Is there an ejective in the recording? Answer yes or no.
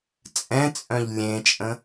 yes